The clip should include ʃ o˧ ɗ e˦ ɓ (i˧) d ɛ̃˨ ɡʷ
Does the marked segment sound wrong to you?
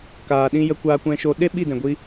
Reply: yes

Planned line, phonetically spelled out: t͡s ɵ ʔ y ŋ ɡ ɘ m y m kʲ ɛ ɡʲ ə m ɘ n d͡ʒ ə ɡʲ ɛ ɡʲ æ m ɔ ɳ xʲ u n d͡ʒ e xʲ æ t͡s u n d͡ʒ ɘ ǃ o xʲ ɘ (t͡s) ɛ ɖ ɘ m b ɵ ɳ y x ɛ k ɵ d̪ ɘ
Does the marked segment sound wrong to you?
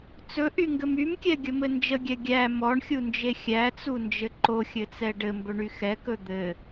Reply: no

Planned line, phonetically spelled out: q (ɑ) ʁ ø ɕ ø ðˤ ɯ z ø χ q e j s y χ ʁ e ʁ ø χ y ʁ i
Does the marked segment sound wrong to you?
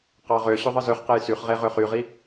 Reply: no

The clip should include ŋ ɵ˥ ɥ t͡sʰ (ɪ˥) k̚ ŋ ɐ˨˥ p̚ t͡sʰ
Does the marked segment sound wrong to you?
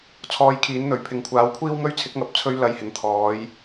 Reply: yes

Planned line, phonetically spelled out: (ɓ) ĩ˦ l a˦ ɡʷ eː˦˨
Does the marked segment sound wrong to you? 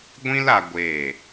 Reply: yes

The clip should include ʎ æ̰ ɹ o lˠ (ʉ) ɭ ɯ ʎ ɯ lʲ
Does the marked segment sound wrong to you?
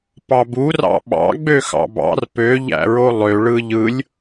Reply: yes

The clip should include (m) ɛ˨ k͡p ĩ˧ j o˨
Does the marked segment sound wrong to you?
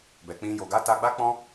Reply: yes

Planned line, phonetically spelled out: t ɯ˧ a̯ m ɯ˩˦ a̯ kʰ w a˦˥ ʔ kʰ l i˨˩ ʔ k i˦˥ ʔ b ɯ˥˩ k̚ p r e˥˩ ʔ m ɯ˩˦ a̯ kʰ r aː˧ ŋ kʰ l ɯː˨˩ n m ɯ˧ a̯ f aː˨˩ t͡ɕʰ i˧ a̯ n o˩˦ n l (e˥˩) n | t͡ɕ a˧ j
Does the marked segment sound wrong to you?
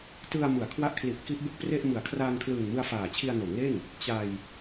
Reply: no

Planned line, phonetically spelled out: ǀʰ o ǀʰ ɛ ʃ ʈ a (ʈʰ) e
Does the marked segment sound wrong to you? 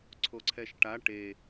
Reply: yes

